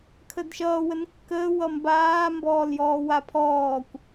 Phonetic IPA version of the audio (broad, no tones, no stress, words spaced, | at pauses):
kʰədʃʌː wənkːəː wʌmbaː mbɔːljɔːwapʰɔːkʷ